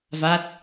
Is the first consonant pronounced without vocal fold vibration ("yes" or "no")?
no